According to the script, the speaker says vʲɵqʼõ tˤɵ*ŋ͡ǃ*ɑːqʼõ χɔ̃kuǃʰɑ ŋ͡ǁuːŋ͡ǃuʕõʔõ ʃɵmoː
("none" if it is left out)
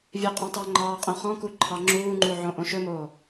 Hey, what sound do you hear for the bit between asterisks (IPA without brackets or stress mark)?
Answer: ŋ͡ǃ